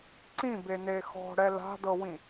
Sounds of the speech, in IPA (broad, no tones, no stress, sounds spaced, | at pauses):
ǀ ĩ b e n e x ɔ̤ ɽ ɛ l a̤ d ɤ w ĩ